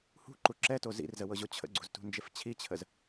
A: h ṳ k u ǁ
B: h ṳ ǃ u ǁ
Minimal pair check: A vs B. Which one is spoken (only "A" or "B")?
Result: B